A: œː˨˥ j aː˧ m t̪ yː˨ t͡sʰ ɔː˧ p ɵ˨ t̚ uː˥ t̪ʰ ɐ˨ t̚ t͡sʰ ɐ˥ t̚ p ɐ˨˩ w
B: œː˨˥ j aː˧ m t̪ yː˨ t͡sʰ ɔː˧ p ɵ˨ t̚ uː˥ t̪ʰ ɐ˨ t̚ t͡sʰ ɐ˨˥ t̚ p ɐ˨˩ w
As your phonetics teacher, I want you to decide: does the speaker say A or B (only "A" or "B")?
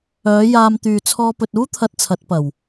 B